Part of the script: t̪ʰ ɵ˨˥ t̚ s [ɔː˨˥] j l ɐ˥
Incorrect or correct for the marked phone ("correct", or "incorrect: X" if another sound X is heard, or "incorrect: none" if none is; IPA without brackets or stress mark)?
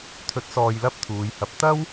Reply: incorrect: ɔː˨